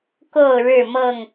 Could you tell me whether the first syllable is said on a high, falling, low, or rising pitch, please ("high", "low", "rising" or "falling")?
falling